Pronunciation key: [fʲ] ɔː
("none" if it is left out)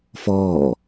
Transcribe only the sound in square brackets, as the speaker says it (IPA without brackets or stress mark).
f